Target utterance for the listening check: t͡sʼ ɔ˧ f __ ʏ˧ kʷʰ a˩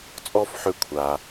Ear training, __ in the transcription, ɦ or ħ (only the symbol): ħ